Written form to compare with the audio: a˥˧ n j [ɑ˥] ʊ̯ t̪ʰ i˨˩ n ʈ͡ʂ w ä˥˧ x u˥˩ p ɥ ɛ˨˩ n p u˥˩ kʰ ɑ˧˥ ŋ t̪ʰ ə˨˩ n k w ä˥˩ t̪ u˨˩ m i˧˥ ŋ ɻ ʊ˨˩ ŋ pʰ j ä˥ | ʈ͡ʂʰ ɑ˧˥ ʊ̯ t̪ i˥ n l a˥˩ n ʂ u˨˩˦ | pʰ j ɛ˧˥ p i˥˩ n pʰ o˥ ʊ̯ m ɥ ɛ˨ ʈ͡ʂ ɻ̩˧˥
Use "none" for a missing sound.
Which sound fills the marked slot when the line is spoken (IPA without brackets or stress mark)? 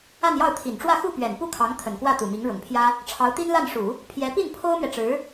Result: ɑ˥˩